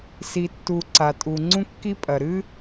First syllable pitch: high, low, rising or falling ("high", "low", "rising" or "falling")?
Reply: low